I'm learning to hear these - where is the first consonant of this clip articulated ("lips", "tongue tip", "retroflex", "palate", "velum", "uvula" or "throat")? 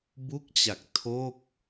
lips